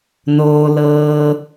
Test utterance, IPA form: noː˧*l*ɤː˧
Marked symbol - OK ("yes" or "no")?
yes